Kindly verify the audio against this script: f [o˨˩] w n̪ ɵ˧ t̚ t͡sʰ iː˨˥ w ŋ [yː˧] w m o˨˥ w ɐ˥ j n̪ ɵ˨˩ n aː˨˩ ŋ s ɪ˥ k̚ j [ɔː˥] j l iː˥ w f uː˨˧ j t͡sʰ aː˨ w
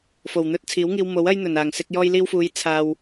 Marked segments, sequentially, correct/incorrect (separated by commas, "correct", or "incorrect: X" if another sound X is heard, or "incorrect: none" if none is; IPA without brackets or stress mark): correct, incorrect: iː˧, correct